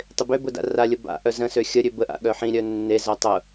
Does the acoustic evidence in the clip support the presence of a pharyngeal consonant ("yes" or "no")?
yes